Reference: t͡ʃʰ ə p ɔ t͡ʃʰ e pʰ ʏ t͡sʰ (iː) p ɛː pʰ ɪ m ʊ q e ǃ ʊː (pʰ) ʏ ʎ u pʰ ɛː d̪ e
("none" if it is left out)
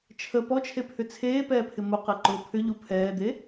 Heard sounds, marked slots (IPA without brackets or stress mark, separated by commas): eː, pʰ